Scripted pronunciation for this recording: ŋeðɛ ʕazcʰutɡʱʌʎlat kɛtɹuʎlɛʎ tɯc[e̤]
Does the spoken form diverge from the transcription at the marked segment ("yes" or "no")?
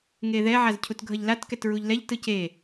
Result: yes